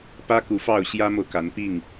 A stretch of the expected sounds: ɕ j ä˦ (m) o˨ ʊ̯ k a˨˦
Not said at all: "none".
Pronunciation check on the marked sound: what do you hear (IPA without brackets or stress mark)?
m